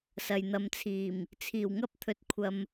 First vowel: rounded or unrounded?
unrounded